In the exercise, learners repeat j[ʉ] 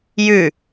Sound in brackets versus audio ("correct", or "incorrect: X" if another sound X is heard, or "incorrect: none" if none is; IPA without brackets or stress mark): correct